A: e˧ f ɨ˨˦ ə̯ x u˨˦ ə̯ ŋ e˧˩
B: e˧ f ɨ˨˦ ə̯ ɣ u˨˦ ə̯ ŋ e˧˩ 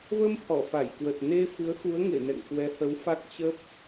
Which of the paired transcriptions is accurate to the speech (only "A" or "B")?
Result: A